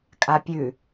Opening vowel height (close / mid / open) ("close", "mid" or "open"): open